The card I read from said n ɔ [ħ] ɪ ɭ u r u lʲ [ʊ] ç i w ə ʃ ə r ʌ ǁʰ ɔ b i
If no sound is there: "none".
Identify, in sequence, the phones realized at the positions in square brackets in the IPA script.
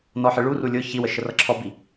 ħ, ʊ

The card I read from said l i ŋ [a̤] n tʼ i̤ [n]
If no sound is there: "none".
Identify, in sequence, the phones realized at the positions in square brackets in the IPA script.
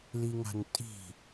a̤, none

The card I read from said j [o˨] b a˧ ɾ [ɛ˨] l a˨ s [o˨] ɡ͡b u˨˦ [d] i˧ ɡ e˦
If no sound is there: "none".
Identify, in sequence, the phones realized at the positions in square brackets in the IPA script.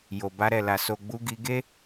o˨, ɛ˨, o˨, ɡ

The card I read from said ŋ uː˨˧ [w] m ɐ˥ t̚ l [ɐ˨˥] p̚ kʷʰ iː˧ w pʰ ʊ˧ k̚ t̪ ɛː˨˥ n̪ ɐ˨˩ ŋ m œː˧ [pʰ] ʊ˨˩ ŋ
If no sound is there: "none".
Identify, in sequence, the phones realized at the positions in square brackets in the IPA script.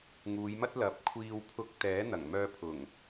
j, ɐ˨, pʰ

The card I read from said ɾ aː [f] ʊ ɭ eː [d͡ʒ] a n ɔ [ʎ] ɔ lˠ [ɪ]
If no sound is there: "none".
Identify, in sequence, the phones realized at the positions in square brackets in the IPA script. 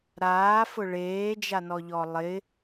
f, d͡ʒ, ʎ, ɪ

